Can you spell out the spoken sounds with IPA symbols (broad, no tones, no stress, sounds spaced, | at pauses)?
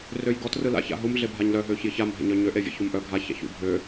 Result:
r ø j ɡ ɔ t r ɯ l a̰ ç a̰ ɦ u m ɮ e bʱ a ɲ l œ ɦ øː ç j ɪ ç a m ɦ ḛ ɲ œ ɲ ø ʔ e vʲ ɛ̰ ç u m ʔ œ ɡʱ a ç a̰ ç ṵ bʱ ø